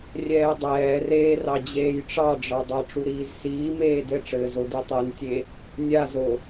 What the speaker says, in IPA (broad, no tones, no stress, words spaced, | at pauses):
rʲɛːdˤɛːreːrɑ d͡ʑeːjʈ͡ʂɑɖ͡ʐɑdˤa ʈ͡ʂuɾiːzsiː meːdɘʈ͡ʂɘːzo ditˤentʲe | nʲazo